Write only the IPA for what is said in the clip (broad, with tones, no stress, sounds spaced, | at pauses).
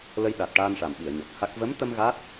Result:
l ə˧ j ɗ a˨˩ t̚ ʈ aː˧ n ʂ a˨˩ m ɓ i˨˩˨ ə̯ ɲ ɔ˨˩ k̚ h a˦˥ k̚ v ə˧˥ m t̪ ə˧ m ɣ a˦˥ t̚